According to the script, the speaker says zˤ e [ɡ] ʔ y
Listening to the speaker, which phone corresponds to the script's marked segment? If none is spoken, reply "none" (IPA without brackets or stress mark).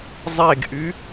ɡ